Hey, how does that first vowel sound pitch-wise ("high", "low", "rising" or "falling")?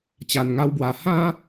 low